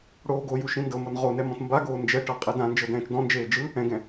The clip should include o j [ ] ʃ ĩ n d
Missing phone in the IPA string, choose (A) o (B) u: B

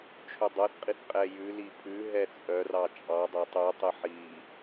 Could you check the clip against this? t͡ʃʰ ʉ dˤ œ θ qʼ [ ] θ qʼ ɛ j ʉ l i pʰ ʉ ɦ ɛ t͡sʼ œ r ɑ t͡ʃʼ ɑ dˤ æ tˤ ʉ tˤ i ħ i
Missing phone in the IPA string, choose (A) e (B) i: B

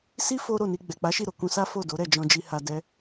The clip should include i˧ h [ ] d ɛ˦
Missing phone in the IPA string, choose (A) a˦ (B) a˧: B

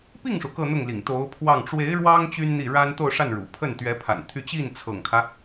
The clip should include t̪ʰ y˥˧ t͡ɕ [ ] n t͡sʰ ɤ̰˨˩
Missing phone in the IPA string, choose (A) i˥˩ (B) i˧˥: A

